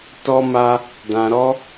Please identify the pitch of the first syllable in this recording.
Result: high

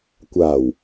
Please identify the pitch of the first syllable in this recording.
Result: low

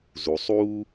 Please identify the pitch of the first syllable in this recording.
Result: low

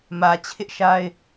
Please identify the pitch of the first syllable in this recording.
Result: low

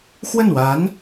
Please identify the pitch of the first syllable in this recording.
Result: falling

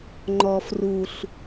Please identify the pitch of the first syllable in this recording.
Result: low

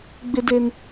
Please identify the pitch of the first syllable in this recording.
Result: high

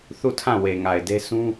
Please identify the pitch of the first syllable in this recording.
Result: falling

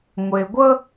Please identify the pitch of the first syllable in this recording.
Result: low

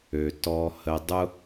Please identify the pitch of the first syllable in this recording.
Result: low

